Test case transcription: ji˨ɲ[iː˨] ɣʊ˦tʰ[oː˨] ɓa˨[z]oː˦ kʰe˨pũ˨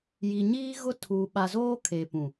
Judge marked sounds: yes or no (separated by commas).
no, no, yes